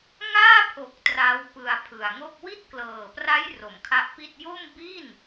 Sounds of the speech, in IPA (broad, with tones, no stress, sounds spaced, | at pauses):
ŋ aː˥˩ pʰ o˨˩ k̚ t r a˦˥ w p ɯ˧ a̯ pʰ ɯ˨˩ a̯ ŋ o˥˩ k̚ w i˥˩ t̚ k l ɤː˨˩ p r a˦˥ j r o˩˦ m kʰ a˦˥ ʔ p i˥˩ t̚ j o˥˩ m b i˥˩ n